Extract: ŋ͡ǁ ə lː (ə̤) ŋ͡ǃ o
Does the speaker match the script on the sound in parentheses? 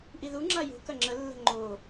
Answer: yes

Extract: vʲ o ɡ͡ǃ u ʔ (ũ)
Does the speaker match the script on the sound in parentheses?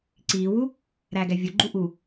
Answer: no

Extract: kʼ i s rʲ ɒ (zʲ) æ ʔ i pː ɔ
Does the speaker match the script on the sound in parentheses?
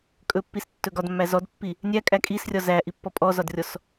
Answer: no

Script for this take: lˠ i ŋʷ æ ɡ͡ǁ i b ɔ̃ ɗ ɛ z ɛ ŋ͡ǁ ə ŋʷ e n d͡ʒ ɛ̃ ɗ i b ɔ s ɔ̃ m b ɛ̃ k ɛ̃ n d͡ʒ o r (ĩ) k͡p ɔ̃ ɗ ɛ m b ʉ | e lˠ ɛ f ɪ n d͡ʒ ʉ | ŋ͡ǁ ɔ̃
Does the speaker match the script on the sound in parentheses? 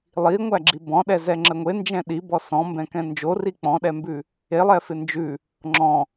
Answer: no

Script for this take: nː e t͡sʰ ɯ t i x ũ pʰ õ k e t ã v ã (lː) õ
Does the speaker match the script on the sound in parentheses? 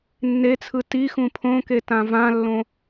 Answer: yes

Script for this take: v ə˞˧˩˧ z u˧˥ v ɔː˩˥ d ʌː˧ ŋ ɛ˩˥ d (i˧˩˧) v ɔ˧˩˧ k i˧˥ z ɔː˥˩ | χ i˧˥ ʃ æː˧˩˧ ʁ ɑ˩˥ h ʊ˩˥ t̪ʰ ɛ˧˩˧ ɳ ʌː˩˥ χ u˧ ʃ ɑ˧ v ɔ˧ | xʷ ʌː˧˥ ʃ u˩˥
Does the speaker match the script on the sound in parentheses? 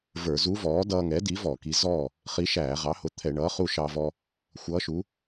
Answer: no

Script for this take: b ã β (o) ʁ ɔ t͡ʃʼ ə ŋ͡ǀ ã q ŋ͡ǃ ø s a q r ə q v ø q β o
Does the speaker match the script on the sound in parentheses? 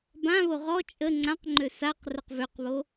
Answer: yes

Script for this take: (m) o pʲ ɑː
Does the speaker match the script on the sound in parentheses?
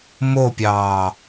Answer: yes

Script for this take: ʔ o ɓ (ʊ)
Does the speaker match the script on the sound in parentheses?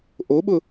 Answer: yes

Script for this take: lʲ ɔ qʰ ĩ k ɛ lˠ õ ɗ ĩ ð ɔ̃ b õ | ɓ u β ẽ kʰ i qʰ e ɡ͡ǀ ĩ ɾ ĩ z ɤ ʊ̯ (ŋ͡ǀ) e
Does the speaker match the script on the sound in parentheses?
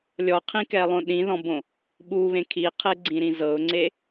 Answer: yes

